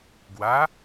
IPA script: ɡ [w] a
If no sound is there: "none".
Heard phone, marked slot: w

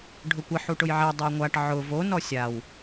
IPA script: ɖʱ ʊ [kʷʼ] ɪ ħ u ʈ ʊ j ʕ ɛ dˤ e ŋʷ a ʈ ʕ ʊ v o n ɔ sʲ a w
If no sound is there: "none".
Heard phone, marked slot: kʷ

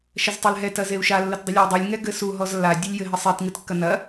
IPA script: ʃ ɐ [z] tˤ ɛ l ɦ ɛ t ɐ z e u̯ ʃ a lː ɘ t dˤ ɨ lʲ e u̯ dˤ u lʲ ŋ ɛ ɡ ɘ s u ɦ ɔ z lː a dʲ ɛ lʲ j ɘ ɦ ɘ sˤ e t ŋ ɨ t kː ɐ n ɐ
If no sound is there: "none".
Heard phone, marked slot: z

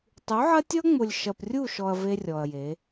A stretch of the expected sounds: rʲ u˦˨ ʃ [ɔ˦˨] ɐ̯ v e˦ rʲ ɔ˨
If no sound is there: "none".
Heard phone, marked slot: ɔ˨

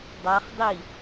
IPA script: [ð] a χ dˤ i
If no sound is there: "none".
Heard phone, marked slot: dˤ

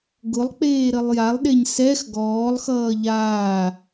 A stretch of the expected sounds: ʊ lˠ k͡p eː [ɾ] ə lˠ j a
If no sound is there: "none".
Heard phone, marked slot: ɾ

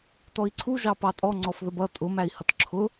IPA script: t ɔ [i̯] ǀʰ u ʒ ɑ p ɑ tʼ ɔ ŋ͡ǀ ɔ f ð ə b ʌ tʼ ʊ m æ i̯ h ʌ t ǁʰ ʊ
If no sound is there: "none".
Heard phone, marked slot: i̯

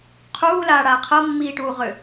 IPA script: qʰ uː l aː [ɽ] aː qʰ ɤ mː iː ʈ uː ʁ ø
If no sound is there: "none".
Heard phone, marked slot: ɽ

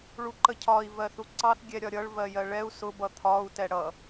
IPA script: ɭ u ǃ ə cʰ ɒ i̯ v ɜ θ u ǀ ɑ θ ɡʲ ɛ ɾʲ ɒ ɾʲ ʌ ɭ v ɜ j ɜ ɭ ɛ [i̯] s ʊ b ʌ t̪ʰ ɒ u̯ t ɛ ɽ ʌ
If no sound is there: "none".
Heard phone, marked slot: u̯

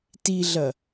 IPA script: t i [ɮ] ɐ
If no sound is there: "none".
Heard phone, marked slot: ɮ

